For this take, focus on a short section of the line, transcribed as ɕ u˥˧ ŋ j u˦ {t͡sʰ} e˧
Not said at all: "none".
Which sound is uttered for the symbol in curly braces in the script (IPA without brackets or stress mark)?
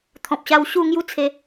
t͡sʰ